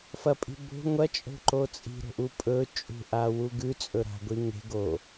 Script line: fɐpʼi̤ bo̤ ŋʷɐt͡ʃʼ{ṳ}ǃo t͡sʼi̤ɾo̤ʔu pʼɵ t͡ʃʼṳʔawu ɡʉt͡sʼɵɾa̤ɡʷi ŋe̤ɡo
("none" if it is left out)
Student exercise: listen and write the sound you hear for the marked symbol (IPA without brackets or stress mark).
o̤